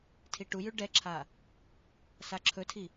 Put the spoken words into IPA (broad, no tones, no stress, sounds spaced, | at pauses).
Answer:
tʰ i ʈ u j ʉ ɖ ɛ ǁʰ a | s a ǁʰ ɵ tʰ i